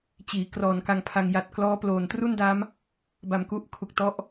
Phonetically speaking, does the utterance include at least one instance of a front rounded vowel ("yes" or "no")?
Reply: no